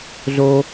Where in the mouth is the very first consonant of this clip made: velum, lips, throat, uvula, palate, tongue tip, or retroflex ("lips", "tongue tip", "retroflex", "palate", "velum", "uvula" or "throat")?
tongue tip